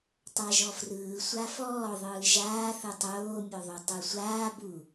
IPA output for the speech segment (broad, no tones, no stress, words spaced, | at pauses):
tˤaʒɔfrɯː sʷafɔː ðˤɯːʒaː θɯtˤoː mʲoðˤutˤusʷaː bu